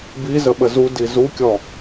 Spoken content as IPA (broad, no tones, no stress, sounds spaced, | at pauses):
b i z ə ɓ ə z u d i z u kʲ ɔ